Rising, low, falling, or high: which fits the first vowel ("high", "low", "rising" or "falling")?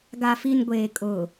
low